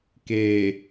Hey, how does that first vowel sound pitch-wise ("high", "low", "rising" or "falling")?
low